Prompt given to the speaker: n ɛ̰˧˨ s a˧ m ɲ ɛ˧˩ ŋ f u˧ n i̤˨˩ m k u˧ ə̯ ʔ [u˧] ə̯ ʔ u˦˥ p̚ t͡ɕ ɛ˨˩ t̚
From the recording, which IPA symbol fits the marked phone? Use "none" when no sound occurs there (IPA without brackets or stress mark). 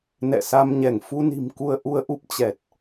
u˧